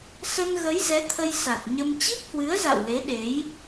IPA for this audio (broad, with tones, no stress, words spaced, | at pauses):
sə˧nɣə˨˦jzɛ˨˦t̪ʰə˧j sa˨˩t̚ɲə˧m t͡ɕi˦˥p̚hwɨ˨˦ə̯za̰˧˨w le˨˦ɗe˨˦j